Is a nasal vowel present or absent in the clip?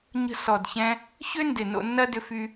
present